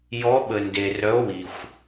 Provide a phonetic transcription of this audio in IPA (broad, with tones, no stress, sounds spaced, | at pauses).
j ɔ˨˥ ɓ ə˩ n d e˩ r œ˨˥ o̯ w i˩ xʷ